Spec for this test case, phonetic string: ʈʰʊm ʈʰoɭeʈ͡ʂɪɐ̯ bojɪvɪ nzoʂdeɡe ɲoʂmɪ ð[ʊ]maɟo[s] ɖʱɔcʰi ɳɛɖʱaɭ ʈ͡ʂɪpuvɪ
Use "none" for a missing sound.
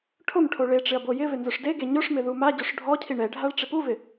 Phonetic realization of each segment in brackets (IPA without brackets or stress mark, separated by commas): u, ʂ